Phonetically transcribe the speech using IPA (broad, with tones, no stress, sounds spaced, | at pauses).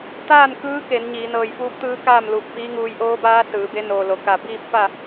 t̪ aː˥˨ n k ɯː˧˥ k e˩˧ n ɲ iː˩˧ n ɤː˧˩ j f uː˧˥ p̚ t̪ ɯː˧˥ k aː˥˨ m l uː˧˩ p̚ f iː˧˥ ŋ uː˧ j ʔ oː˧˥ b aː˧˥ s ɯː˩˧ b e˧˥ n oː˩ l o˩ k a˧˩ b iː˥˨ p̚ f a˥˨